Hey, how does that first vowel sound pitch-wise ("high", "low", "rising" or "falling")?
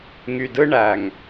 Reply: low